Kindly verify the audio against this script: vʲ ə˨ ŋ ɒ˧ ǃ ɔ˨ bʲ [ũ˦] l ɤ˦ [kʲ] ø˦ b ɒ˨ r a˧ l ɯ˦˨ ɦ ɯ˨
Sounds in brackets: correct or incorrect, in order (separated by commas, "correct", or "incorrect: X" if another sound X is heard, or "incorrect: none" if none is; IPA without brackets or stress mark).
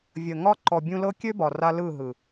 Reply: incorrect: ũ˧, correct